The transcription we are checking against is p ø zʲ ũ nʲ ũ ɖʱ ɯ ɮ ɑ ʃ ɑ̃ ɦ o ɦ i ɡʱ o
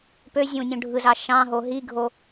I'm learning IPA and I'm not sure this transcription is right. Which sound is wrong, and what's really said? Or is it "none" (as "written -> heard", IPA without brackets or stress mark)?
ɮ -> z